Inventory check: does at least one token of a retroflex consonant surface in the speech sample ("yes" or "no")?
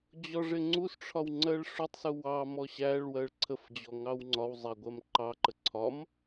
yes